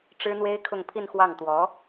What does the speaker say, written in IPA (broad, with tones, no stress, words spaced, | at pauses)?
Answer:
ʈ͡ʂɻ̩˥n̪we˥ɪ̯ kʰʊ˥˧ŋpʰi˥˧n xwɑ˥˩ŋt̪wɔ˧˥